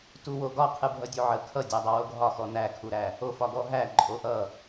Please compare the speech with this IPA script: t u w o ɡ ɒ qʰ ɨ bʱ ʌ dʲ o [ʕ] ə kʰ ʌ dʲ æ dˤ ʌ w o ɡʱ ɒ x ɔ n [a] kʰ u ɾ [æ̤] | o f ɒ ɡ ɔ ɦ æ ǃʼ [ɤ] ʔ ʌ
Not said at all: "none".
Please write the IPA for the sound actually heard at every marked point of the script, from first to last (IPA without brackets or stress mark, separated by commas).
ʕ, æ, æ, o